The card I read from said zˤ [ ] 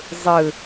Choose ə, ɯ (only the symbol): ɯ